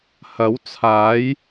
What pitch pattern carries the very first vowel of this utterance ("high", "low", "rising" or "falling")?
rising